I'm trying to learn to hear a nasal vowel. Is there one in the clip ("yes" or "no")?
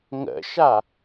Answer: no